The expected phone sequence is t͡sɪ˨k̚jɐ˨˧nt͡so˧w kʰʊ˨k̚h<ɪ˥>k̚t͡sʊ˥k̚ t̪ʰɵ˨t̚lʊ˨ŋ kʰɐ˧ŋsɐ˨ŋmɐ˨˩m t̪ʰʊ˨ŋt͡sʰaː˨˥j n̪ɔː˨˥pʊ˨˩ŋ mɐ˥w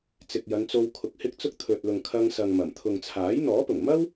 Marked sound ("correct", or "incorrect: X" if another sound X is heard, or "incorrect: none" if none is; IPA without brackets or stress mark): correct